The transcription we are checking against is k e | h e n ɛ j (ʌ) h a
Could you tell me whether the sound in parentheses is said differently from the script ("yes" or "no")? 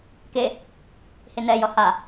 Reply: no